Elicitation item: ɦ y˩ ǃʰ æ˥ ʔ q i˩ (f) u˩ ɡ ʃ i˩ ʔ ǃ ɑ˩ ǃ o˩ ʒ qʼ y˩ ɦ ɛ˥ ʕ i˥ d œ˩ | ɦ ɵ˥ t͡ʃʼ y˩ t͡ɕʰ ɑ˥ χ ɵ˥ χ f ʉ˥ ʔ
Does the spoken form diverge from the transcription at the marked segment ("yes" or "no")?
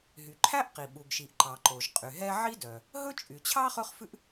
yes